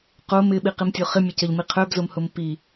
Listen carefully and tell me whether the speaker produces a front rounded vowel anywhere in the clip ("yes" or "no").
yes